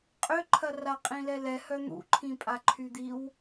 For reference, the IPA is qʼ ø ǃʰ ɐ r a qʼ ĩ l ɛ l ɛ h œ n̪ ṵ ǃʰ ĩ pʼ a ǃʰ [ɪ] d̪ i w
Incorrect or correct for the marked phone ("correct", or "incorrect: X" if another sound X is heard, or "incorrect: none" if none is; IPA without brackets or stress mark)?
incorrect: y